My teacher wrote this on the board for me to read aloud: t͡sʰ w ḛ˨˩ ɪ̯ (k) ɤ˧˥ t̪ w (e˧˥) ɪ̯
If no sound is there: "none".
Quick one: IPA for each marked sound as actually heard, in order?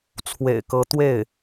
k, e˥˩

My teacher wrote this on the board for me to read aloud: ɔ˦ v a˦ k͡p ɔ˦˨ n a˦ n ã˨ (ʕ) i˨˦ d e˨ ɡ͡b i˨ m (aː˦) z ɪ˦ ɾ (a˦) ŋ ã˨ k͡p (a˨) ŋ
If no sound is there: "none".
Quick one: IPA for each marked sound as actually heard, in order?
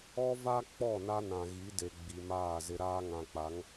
ɣ, aː˦˨, aː˦, a˨˦

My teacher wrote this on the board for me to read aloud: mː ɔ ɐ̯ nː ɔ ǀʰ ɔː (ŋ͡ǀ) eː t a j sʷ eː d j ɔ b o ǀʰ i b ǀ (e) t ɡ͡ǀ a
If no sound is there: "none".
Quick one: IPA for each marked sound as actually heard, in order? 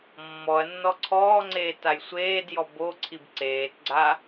ŋ͡ǀ, eː

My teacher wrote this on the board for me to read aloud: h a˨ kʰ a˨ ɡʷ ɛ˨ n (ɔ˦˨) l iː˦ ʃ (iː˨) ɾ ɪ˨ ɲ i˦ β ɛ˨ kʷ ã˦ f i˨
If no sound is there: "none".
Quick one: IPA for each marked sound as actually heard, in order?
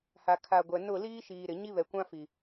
ʊ˦˨, iː˨

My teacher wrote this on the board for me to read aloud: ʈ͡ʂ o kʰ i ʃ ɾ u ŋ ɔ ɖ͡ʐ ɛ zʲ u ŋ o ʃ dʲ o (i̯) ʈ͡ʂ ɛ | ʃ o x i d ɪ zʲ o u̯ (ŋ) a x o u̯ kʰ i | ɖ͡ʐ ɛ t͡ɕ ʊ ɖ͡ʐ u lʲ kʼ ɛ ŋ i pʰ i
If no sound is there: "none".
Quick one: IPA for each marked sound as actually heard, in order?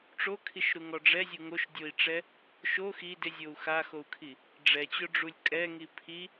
i̯, x

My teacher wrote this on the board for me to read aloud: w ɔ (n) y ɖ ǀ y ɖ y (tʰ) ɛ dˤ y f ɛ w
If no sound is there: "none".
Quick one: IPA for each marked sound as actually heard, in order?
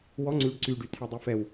ŋ͡ǀ, tʰ

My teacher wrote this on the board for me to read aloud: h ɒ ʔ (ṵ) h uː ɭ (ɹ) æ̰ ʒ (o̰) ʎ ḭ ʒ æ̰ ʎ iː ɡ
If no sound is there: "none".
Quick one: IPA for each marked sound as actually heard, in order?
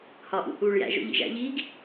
ṵ, j, o̰

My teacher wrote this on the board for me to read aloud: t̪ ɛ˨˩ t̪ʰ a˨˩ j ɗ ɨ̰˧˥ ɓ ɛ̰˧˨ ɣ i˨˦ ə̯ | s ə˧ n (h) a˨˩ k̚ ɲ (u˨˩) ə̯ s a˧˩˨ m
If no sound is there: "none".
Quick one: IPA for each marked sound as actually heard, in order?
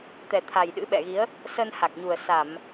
h, u˨˩

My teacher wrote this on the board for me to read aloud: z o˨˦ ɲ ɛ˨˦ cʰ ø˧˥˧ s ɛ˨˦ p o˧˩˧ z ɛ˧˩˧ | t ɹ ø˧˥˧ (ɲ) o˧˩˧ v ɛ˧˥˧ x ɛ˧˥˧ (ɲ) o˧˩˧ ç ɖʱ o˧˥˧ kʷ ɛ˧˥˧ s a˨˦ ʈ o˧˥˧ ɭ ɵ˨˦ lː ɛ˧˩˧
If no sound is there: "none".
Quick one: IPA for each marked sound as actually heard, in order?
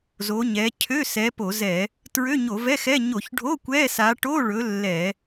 ɲ, ɲ

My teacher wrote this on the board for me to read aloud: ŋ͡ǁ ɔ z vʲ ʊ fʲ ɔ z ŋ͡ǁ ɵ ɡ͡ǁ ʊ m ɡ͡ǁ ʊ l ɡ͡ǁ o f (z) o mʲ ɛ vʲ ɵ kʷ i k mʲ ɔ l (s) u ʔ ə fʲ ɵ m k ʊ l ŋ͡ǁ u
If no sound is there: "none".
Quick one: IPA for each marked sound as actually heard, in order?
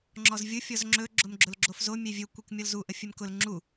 z, z

